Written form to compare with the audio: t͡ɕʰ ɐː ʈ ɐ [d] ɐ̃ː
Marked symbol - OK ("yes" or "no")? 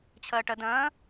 yes